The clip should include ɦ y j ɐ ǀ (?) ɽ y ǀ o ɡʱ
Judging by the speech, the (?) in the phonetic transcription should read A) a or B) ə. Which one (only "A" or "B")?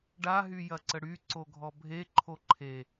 B